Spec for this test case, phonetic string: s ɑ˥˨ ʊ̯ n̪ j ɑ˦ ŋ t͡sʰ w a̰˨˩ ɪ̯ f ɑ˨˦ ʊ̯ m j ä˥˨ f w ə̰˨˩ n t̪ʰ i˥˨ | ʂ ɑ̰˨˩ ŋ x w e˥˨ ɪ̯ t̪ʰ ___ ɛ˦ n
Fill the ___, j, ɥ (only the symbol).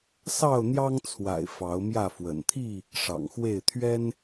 ɥ